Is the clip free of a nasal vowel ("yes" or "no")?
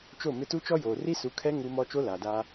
yes